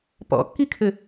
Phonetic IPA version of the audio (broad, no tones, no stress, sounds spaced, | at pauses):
p ɔ̰ kː i kʰ ɘ